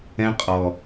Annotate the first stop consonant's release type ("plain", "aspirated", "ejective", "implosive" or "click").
ejective